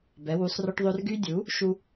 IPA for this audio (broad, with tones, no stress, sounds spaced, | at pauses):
b ɛ˩˥ w u˩˥ sˤ r œ˦ ʈ ðˤ ø˦ r ɡ y˦ dʲ u˩˥ | ʃ u˦